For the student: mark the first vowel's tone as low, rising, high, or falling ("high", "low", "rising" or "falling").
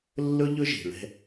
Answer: high